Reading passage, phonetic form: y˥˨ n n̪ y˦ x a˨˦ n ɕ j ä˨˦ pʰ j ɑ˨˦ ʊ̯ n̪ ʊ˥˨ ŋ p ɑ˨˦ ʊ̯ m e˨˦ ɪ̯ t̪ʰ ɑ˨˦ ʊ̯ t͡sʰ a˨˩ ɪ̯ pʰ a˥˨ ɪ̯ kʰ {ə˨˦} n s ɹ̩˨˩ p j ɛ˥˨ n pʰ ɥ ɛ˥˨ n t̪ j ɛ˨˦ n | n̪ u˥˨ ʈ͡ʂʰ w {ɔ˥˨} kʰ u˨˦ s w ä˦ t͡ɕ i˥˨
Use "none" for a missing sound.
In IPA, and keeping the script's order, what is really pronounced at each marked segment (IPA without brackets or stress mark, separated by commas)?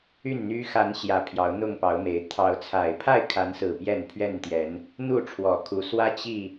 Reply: a˨˦, ɔ˨˩